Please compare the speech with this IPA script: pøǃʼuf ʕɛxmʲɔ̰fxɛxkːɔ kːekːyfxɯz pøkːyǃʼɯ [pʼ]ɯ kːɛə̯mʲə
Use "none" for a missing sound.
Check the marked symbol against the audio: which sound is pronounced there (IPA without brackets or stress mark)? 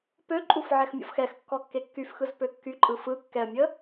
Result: f